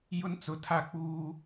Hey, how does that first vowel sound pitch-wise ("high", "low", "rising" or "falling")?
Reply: high